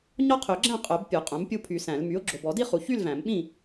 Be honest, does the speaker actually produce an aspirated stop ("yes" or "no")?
yes